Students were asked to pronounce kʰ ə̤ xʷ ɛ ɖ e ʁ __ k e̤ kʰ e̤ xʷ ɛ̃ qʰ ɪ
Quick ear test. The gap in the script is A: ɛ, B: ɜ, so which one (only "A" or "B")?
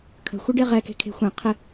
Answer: A